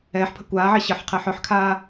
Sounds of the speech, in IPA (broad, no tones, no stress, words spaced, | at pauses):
ɛːħpʰə̤ kʷaːʕe ɕəħ qʰɛħœħkʰaː